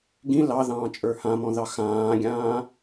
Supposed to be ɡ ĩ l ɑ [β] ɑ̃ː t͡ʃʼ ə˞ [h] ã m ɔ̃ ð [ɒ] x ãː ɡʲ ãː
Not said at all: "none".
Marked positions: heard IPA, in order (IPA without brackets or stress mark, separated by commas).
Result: ð, h, ɑ